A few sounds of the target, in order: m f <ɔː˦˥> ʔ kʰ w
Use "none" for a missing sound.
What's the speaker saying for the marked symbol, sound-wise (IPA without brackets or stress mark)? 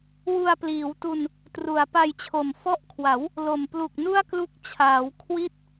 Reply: ɔ˦˥